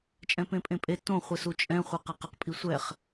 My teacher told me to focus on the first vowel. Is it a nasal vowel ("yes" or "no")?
yes